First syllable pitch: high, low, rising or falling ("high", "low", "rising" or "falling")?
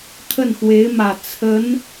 falling